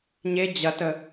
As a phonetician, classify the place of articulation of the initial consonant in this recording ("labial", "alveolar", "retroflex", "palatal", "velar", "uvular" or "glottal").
palatal